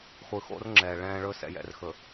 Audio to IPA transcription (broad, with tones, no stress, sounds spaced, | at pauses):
χʷ ɯ˨ x o̰˦ r ŋ͡ǁ ɛː˨ ɭ ɛ̃ː˦ ɭ ɵː˦ s ɛ̰˨ j ɛ̰˨ r x ɵ˨